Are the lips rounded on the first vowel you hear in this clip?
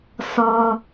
yes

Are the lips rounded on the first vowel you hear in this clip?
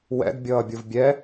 no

